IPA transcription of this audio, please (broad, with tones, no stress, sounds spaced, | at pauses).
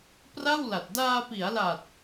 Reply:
p r a˥˩ w l a˨˩ t̚ d aː˧ p i˩˦ a̯ l a˨˩ t̚